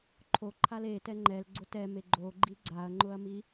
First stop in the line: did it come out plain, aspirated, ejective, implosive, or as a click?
click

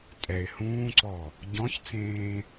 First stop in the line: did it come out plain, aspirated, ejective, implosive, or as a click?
ejective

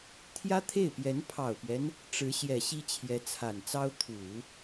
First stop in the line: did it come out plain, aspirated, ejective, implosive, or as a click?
aspirated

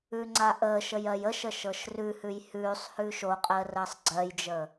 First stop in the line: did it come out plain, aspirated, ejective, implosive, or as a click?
click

